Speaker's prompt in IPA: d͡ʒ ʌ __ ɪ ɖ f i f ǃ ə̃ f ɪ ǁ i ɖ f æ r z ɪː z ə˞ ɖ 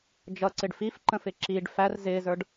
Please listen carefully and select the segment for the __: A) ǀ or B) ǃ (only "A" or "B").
A